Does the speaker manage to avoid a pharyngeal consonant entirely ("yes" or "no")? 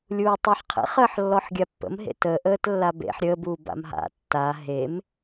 no